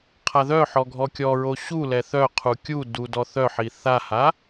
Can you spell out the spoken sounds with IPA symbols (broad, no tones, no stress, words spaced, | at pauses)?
qʰaðœħɔ ɡʱɔkʲɔɹo ɕulɛ θœ qʰukʲudu dɔθœħi θaha